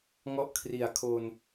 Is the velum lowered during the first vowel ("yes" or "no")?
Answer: no